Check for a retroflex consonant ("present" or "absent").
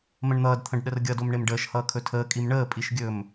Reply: present